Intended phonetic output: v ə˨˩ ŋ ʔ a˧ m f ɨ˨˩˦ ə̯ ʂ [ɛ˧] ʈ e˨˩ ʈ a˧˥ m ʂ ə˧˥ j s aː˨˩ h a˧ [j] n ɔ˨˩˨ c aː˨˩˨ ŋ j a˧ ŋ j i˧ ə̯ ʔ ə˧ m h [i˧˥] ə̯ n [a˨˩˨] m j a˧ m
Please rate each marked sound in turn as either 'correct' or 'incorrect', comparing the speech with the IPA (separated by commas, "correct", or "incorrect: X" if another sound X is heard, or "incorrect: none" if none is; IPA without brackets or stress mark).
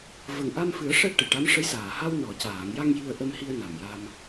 correct, incorrect: w, incorrect: i˧, incorrect: a˨˩